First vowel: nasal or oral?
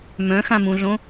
nasal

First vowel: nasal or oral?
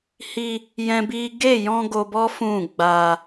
oral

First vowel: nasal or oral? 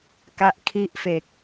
oral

